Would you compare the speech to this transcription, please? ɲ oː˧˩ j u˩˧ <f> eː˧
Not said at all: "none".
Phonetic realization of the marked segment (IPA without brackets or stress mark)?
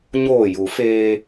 f